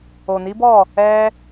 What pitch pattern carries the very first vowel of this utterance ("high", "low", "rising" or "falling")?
low